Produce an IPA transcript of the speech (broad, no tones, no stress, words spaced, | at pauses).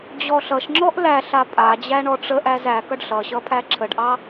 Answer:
d͡ʑɔɬʌʃŋ͡ǁɔʔ læ ɬapʼad͡ʑæ ɳɔʈ͡ʂəʔæz ækʌɖ ɬʌɕʌ pʰæǁʰəɖʔɑ